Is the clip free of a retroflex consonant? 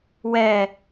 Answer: yes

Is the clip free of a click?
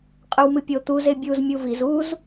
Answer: yes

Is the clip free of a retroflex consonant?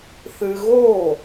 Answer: yes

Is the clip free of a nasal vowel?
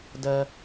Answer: yes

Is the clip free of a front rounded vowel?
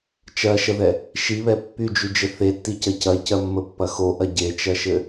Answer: no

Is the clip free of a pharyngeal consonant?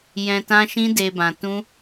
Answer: yes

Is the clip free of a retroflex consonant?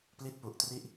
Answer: yes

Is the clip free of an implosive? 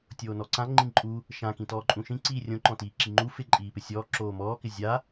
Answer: yes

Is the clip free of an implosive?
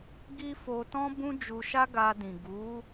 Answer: yes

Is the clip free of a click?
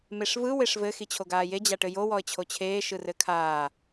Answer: yes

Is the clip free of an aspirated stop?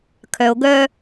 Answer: no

